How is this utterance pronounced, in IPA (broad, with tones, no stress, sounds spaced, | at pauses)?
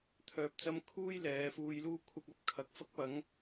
t̪ʰ œː˧ p̚ t͡s ɐ˥ m kʰ uː˥ j l ɛː˨˧ f uː˧ j l uː˥ kʷʰ ɐ˧ k̚ ɐ˥ p̚ kʰ ɐ˨˥ k̚ f ɐ˥ k̚ p ɐ˨˥ ŋ